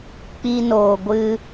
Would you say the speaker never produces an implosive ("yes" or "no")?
yes